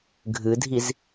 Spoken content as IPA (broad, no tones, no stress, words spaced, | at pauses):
ɡʱɨdʱiz